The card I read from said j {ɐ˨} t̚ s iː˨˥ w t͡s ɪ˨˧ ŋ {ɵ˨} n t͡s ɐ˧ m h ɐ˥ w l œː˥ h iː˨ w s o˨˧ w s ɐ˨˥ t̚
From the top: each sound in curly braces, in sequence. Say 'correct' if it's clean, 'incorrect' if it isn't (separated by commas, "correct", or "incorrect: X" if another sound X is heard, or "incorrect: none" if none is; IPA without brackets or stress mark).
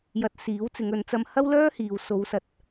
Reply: correct, incorrect: ɵ˨˧